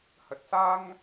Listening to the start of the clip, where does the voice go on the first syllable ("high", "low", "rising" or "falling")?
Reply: low